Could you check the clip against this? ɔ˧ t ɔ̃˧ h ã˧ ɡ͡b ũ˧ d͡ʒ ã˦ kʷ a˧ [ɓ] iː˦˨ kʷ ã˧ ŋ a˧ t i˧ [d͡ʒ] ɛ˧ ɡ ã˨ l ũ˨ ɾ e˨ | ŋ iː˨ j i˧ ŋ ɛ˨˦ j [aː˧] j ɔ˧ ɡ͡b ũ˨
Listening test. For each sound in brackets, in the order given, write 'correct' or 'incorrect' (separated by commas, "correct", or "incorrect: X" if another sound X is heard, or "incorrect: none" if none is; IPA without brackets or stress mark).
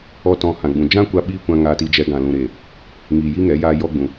correct, correct, correct